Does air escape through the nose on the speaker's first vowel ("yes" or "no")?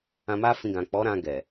yes